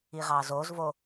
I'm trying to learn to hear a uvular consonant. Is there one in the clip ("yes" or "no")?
yes